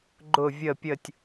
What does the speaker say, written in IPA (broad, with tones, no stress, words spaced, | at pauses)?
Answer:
ɡ͡ǃʊ˥˧vʲə˥˧ pʲə˥˧tʲ